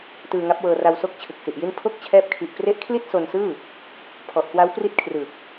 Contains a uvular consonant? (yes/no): no